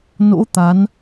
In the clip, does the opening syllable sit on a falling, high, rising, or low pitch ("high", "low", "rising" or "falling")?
rising